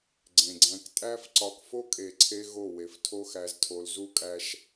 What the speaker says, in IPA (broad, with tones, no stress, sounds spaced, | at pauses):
ɡ͡ǀ ẽ˨ ɡ͡ǀ æ̃˧ k tʼ æ˦ f ǀ ɒ˦ k f o˦ kʼ e˨ ǀʰ e˧ ɣ o˦˨ w e˨ f tʰ o˧ x æ˨ z tʰ o˨ l z u˦ kʼ æ˧ ʃ